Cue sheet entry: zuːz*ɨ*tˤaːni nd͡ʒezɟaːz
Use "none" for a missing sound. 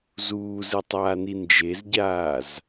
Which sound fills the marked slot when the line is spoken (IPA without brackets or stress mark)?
ɨ